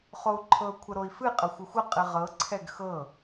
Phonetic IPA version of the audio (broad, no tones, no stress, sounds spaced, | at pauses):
χ o u̯ ǃʰ ɤ kʷʰ ə ɾ o i̯ f ɨ qʼ ə xʷ ə xʷ ə qʼ ɨ ʁ ɤ ǀʰ ɛ ɡ x ɤ